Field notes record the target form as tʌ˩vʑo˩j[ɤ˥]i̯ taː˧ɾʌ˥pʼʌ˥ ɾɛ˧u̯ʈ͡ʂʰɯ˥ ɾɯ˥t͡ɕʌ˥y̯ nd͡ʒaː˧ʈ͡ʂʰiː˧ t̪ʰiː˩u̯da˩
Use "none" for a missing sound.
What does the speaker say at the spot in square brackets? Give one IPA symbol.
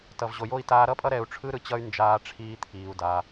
o˥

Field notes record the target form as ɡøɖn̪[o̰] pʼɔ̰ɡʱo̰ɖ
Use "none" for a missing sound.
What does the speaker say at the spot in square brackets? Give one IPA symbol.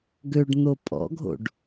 o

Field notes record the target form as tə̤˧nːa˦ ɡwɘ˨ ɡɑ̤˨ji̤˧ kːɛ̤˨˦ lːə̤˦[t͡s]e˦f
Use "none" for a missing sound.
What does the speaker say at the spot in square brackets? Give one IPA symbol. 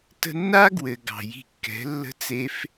t͡s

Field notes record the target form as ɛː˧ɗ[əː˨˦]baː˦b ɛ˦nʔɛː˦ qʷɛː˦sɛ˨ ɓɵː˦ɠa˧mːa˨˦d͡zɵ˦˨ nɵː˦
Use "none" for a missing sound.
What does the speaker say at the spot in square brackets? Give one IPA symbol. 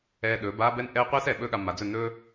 ɵː˨˦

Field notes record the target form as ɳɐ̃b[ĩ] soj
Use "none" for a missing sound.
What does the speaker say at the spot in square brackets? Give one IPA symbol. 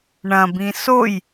ĩ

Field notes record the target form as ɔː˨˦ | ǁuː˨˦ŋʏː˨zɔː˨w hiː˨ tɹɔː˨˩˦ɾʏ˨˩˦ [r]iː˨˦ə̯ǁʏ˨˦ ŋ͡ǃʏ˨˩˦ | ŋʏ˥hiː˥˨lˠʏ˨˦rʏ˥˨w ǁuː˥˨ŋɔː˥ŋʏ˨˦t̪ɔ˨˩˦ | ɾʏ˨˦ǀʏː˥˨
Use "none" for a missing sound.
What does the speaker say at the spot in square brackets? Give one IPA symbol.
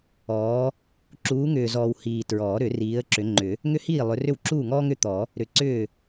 r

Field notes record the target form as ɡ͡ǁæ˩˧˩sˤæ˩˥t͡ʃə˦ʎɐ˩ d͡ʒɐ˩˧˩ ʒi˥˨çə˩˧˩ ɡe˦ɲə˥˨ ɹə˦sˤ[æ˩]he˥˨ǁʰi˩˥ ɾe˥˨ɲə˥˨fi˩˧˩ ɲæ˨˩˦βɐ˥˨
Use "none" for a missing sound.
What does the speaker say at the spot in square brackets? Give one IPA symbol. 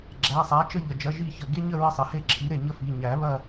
ɐ˩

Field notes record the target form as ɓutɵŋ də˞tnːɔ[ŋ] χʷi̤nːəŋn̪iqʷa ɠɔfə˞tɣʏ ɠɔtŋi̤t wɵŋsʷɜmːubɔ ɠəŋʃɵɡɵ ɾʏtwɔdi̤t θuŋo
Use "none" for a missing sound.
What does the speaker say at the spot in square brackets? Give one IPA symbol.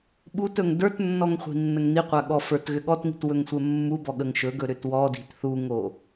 ŋ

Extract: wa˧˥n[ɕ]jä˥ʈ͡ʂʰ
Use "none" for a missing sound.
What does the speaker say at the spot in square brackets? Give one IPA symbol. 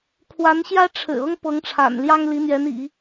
ɕ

